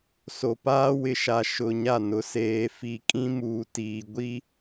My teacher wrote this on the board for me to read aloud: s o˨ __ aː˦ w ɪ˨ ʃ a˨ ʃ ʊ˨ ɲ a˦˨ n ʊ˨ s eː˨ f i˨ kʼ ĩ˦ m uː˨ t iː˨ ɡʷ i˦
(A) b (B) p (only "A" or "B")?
B